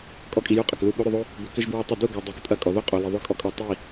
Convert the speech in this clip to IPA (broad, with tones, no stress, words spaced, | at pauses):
kʼɔ˦kʼi˧ju˦ qʼɐ˨klu˦˨ ɓo˦ɾʏ˧ðˤo˦ | bʏ˦ kʏ˦ʒbɹɔ˦tˤʏ˦˨ du˦˨ɡɔ˨ dˤi˨˦ktʼɐ˦˨ kʼɔ˨ðo˦ qʼo˨li˨ðˤʏ˦ kʼɔ˧kʼɔ˧ tˤi˦˨